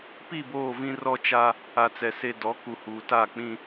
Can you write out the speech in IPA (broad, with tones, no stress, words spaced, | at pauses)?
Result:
pi˦˨boː˦˨vĩ˦ rɔ˦t͡ʃa˦ | a˨t͡sɛ˨ se˨ dɔ˨˦ ku˨huː˨ta˦˨k͡pĩ˦